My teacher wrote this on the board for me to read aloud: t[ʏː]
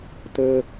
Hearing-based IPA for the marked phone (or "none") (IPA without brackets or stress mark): əː